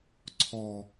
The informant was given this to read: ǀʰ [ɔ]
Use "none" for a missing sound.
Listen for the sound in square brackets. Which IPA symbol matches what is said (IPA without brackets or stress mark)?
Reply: ɔ